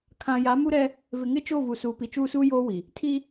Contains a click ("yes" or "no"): no